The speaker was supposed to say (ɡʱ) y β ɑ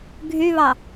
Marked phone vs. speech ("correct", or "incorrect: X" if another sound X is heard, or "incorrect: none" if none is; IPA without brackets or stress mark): correct